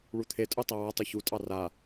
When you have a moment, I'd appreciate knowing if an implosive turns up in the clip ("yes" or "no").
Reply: no